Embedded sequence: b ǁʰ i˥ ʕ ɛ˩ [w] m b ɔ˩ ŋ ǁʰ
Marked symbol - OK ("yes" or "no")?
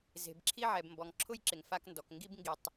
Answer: no